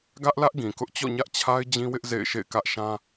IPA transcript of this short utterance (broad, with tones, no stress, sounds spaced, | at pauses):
ɡ ä˦ ʔ l ä˦ ʔ ɡ ĩ˨ k ʊ˦ ʔ t͡ɕ ɔ̰˦˨ ɲ ä˦ ʔ t͡ɕʰ a˦ ɪ̯ d͡ʑ ĩ˦ w ɪ˦ ʔ z ḛ˦˨ ɪ̯ ʃ ḛ˦˨ ɪ̯ k ä˦ ʔ ʃ ã˦